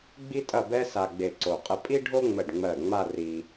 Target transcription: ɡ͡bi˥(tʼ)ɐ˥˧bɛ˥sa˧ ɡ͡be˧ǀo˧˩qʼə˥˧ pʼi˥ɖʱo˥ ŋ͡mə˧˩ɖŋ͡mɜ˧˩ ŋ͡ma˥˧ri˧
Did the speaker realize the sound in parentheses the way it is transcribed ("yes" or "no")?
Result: yes